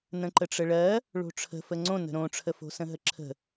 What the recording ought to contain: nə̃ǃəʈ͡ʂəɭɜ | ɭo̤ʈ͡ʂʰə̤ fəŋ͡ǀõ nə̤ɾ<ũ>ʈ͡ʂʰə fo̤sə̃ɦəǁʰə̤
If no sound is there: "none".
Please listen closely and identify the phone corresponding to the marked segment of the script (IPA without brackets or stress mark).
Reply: õ